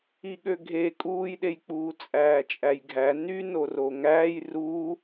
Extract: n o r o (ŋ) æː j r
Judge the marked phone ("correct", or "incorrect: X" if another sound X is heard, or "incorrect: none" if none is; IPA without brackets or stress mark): correct